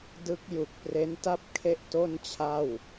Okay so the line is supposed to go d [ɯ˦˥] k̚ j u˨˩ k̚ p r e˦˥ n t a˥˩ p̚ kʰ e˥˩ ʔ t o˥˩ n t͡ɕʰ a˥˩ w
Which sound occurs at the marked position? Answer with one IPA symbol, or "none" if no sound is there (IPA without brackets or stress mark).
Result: ɯ˦˥